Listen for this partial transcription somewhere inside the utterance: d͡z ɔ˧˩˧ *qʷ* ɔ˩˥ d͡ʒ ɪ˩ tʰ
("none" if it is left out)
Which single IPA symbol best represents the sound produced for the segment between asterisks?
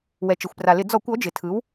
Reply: kʷ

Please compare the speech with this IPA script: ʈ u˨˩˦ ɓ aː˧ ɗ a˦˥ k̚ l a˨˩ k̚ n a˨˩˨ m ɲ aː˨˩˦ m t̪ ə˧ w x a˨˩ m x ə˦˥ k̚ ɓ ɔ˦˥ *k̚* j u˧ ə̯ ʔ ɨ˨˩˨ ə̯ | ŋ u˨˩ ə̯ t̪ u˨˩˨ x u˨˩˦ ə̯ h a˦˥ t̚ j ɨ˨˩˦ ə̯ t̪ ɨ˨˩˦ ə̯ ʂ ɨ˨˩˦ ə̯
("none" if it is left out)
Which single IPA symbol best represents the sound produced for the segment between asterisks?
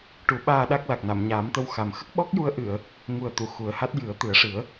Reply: k̚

